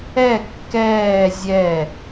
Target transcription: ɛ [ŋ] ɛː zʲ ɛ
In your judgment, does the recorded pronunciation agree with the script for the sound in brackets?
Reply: no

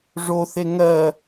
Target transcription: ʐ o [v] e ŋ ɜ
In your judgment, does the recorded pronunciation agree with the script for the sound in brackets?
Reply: no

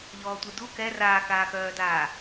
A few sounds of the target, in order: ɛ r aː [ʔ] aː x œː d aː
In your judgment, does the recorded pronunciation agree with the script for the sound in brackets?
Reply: no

